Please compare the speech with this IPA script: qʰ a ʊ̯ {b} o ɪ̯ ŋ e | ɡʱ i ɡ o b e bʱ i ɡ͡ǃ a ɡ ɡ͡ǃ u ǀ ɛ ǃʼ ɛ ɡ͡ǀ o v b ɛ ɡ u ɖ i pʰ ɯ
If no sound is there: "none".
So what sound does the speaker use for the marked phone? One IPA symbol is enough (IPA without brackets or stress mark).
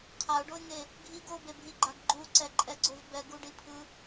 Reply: ɖ